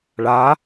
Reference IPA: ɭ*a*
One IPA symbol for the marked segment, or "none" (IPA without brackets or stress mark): a